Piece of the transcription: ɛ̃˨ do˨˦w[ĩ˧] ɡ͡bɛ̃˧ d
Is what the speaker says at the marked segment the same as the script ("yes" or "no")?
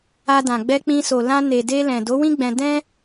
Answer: no